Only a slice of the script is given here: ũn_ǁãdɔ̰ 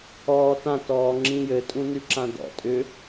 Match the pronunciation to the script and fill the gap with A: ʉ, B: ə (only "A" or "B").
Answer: A